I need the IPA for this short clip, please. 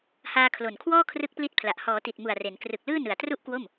haː˧kʰlo˨˩nkʰwɔː˥˩ kʰrɯ˦˥k̚pli˦˥t̚pʰla˨˩ʔ hɔː˩˦ti˨˩t̚mu˨˩a̯ re˩˦n krɯ˨˩k̚lɯː˥˩ nɯ˨˩a̯tru˥˩ʔkwo˥˩m

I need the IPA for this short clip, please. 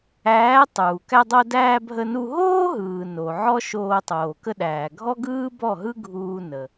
æː˩˥ tˤuː˩kæ˧dˤo˧ dæː˧bʱə˧nu˧ ɦoː˥ɦɯː˩ no˩ ʕɔ˥ʃoː˧ tˤoː˩kə˧ɗæː˩ ɡʱɔ˥ɡɯː˥ bɔ˥˩ɦɯ˥ɡʱuː˧ nə˩

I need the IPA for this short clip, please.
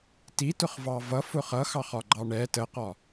titʊχvɑ vʌfʊ χʌxɑχɒɡ͡ǃɑ ɳɛ təqɒ

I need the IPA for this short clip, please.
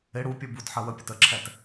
ɪ ɽupʲu but ħɜwəpʲʊt əǁʰɛt

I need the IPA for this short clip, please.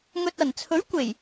ŋɵ˨t̚ɐ˨˩nt͡sʰɵ˨˥ɥ kʷe˨˩j

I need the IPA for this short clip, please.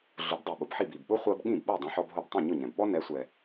ɮʊ˩˥bdˤo˩ɓʊ˩bħi˥˩b i˩bɓʊ˥ χʷɜ˥b ɠĩ˥˩bɓo˥˩ dˤɛ̃˧ħɔ˧bɦo˧btˤõ˥˩ ɲʊ˥˩ ɲɛ̃˩bɓɔ˥ nɛ˩˥sʷɛ˩

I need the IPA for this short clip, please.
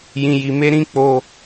jĩ˨ji˨ me˧ɾĩ˧ k͡po˦

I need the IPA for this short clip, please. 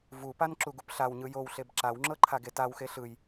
vupan ǁuɡupɬawɲɯ jowɬeb ǁawŋ͡ǁɤ ǃʰaɡetawxe ɬɯj

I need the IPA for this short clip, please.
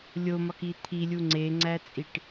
lʲomɒki t̪ʰilʲu ŋ͡ǀeŋ͡ǀæt͡sʼiʈ

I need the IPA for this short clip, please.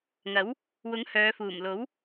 ŋɐ˨˥w | wʊ˨˥ŋ hœː˨˧fuː˨˩m lo˨˥w

